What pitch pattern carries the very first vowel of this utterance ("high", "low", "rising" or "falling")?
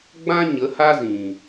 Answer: high